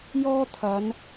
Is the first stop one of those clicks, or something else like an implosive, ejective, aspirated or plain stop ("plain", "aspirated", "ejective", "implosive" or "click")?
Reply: aspirated